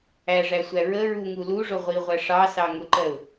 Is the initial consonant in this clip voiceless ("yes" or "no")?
no